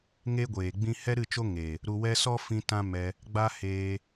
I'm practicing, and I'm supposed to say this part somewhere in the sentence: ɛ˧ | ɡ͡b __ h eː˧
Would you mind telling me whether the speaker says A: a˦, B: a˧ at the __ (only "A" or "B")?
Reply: A